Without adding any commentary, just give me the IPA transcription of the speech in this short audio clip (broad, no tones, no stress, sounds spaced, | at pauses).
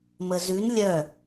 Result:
m ə z ʉ n lʲ œ